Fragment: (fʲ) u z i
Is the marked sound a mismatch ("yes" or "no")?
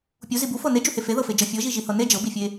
yes